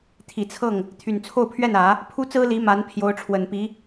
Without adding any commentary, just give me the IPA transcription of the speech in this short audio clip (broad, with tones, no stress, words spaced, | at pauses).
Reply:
t̪ʰi˨˩t͡sʰɤ˥˩ŋ | t̪ʰy˨˩nt͡sʰo˥˧ʊ̯pʰɥɛ˥˩nä˨˩˦ | pʰu˥t͡sɹ̩˥li˧˥ ma˧˥n pʰjo˧˥ʊ̯ʈ͡ʂʰwə˨˩npi˧˥